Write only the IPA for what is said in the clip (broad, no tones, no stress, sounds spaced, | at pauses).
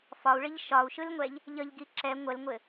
f ɒ u̯ ɭ ɘ ʎ ʃ ɒ u̯ ʃ ɯ l ŋʷ ɛ ʎ | ʎ ʌ ʎ ɡ i ǁ ɛ ŋʷ ə l ŋʷ ɘ